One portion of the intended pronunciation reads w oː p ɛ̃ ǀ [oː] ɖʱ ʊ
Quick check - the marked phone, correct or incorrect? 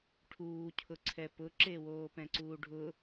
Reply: incorrect